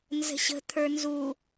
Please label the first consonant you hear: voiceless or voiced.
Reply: voiced